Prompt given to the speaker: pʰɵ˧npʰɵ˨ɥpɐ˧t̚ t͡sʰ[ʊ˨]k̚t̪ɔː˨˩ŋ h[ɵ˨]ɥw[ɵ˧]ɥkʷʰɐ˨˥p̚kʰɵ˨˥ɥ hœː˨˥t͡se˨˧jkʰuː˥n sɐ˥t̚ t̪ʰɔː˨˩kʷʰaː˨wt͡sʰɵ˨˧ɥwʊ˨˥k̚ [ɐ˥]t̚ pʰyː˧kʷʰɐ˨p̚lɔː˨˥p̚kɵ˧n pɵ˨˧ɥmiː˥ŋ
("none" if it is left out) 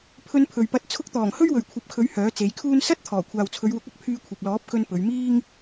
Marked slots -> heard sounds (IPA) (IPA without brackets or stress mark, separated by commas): ʊ˧, ɵ˥, ɵ˨, ɐ˥